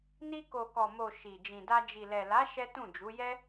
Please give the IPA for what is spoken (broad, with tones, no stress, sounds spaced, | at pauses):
n i˧ k o˨ k ɔ˨ m o˨ ʃ i˨ d͡ʒ ĩ˨ d a˧ d͡ʒ i˨ l ɛ˨ l a˨˦ ʃ ɛ˦ t ũ˦˨ d͡ʒ u˨˦ j ɛ˦